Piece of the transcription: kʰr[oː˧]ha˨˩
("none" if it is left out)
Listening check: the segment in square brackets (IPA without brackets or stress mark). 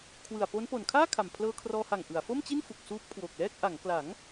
ɔː˧